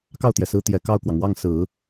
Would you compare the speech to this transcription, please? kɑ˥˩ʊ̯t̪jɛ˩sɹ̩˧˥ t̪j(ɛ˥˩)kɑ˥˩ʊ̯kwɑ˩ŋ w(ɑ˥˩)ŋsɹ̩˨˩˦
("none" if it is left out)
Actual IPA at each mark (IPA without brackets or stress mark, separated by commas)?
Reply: ɛ˨˩, ɑ˥˩